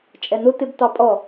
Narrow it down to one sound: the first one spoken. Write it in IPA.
t͡ʃʼ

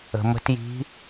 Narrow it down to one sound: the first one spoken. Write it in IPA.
ə̤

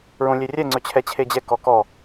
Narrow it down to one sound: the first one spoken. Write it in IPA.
ɹ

